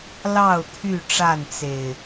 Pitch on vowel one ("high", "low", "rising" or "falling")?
falling